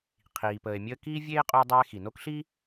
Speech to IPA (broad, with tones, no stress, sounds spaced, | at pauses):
qʰ iː˩ p əː˨ e̯ mʲ əː˥ k iː˥ vʲ eː˥ qʼ o˦ dˤ ɛː˦ x i˩ n o˥ k ɬ iː˥